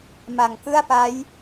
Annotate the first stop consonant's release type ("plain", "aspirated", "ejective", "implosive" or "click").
plain